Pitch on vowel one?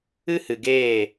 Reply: high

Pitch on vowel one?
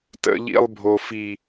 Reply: high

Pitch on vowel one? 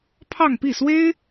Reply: falling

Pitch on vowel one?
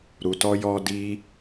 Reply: low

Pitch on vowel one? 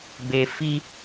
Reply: high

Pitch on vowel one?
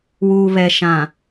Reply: low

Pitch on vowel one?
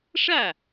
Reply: falling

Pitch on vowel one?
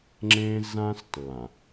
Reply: high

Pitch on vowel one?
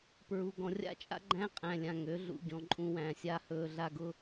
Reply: low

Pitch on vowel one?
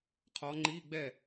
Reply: rising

